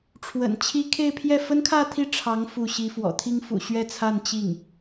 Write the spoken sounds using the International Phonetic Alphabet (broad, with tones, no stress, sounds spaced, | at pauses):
ʈ͡ʂʰ w ə̰˨˩ n t͡ɕʰ i˥ kʰ e˥˧ ɪ̯ pʰ j ɛ˥˩ f ə˥ n kʰ ä˥˧ t̪ʰ i˥˩ ʈ͡ʂʰ ɑ˧˥ ŋ f u˥˩ ɕ i˧˥ f w ɔ̰˨˩ t̪ʰ i˥ ŋ f ṵ˨˩ ɕ ɥ ɛ˥˧ t͡sʰ a˥˧ n t͡ɕ i˥˩ ŋ